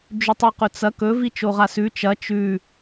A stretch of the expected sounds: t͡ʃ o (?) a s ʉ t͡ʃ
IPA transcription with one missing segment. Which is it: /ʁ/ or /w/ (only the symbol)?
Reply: ʁ